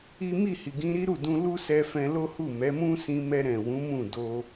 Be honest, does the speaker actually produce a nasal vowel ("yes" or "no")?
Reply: yes